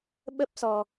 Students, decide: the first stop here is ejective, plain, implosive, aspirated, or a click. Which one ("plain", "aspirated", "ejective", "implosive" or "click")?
implosive